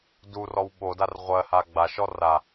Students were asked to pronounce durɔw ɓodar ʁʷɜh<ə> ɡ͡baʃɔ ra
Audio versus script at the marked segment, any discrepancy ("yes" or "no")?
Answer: yes